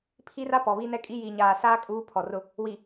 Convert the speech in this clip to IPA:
pʰi˦ra˦ pɔ˨βi˦nɛ˦kʼi˦ jiː˨ɲaː˨saː˦ kʼuː˦pʰɔ˨rʊ˦ | wi˨

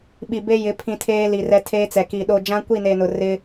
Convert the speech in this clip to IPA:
ɓi˨ be˦jɪ˨˦ pʰĩ˦tʰeː˦li˨rɛ˦ tʰeː˦t͡sɛ˨ki˨ ɗo˨ d͡ʒã˦kʷi˦˨ne˨nʊ˨ rɪ˦

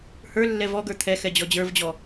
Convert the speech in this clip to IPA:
hə˞lːɛ vɔɡə˞ t̪ʰɛxɛ d͡ʑɔd͡ʑə˞vd͡ʑɔ

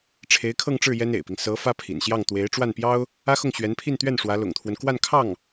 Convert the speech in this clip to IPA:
ʈ͡ʂʰe˧˥ɪ̯kʰɤ˥˧ŋʈ͡ʂɻ̩˥˩ jɛ˥nḛ˨˩ɪ̯pi˦ŋ sɤ˧˥ fä˥pʰḭ˨˩nɕjɑ˥˩ŋ t̪we˧˥ɪ̯ ʈ͡ʂwa˥˩npjɑ˥ʊ̯ | ä˥xʊ˥˩ŋ ɕɥɛ˧˥npʰi˥˧nt̪ɥɛ˥˩n ʂwä˧˥lʊ̰˨˩ŋt̪ʰwə˦n kwa˥˧nkʰɑ˥˩ŋ

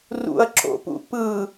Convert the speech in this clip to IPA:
rṵɐ̯ǁo̰pṵ pɯ

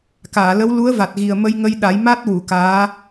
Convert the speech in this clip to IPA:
kaː˨˩˨lə˧˥w lu˧˥ə̯va˨˩t̚ ɣi˨˩ə̯ mə˧jŋə˧jɗa˨˩˦j ma˦˥t̚wu˨˩˨ kaː˧˥

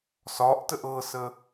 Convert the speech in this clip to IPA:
sɒʔtəʔ ɤsə

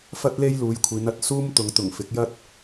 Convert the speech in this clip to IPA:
fɐ˥t̚le˥jluː˨˧jkʷʰiː˨˧n ɐ˧t̚suː˥mt̪ʊ˨˧ŋt̪ʊ˨˩ŋ fɪ˨˥k̚jɐ˥t̚

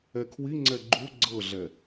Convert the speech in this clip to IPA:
ɛkʰwi ŋ͡ǀɛɡ͡ǃu ɡ͡ǀɤɮɛ

